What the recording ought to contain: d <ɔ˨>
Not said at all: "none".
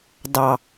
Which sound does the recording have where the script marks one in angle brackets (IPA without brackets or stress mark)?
ɑ˨